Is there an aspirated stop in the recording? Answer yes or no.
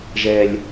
no